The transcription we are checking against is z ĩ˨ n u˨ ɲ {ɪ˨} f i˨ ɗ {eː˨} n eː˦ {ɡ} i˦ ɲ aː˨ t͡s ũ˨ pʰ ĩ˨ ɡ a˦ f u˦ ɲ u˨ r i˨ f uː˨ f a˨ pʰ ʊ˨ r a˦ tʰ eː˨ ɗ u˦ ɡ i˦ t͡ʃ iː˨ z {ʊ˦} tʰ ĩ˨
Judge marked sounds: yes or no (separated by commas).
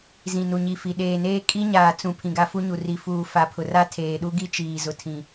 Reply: no, yes, no, no